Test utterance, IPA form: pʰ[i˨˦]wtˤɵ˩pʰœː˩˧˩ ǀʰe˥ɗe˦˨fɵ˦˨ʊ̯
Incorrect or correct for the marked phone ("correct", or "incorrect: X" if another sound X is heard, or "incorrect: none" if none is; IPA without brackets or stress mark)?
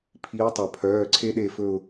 correct